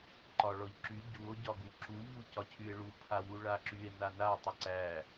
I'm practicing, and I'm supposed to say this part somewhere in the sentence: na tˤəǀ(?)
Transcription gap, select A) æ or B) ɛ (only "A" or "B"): A